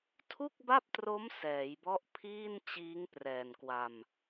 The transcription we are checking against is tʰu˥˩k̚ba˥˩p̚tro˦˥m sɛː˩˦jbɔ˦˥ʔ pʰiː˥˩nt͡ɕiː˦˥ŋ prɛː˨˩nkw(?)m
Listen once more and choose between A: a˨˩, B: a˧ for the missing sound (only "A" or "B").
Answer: B